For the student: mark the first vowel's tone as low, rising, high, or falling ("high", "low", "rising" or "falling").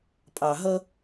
low